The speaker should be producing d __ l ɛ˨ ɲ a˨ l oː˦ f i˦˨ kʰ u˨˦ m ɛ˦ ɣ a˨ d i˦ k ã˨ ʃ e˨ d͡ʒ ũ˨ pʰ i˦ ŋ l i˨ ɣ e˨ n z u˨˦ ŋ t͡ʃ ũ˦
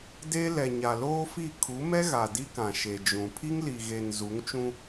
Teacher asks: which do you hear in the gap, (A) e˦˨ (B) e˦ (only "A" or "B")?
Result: B